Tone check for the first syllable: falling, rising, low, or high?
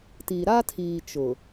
low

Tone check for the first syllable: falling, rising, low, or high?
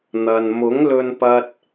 low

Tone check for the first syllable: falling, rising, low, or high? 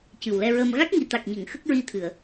low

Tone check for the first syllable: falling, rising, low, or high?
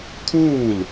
falling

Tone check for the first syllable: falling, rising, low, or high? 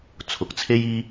rising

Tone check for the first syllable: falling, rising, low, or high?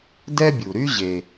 high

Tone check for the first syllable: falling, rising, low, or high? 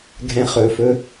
rising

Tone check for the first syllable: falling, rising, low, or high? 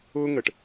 high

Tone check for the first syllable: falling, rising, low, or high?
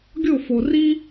falling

